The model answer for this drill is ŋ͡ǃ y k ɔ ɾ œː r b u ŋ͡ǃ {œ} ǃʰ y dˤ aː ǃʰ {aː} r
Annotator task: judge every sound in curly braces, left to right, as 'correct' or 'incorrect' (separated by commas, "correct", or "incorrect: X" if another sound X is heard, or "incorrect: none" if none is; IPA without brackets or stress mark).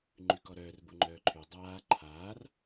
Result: incorrect: œː, correct